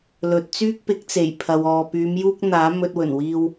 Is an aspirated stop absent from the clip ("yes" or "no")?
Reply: no